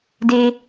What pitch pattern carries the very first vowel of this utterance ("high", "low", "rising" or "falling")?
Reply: low